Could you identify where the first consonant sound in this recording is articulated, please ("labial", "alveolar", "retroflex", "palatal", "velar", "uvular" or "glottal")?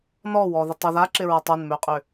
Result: alveolar